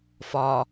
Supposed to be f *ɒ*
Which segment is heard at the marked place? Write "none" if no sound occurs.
ɒ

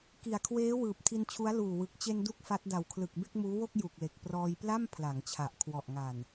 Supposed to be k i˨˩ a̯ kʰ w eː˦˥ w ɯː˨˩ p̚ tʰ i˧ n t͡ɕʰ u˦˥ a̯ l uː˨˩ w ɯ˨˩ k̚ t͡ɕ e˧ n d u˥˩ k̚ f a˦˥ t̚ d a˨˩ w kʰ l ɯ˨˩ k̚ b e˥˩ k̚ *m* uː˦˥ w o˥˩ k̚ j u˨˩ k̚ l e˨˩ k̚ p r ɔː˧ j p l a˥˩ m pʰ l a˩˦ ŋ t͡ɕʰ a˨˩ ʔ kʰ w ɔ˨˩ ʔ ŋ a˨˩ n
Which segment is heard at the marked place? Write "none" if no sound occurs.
m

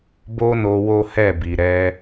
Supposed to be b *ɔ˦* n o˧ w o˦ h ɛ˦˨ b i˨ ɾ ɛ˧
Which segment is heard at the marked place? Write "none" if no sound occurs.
o˦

